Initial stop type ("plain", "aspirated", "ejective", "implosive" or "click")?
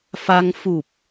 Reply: plain